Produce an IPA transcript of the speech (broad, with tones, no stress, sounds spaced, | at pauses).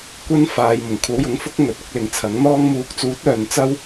kʷ ɐ˥ n f aː˨ j m ʊ˨˩ ŋ kʷʰ ɐ˨˥ w j ʊ˨˥ ŋ f ʊ˥ k̚ ŋ ɵ˨ t̚ ʊ˨˥ k̚ l ɪ˨ ŋ t͡sʰ ɐ˨˥ ŋ n̪ ɔː˧ ŋ m uː˨˥ k̚ t͡s uː˨˥ t̚ œː˧ n t͡s ɐ˥ w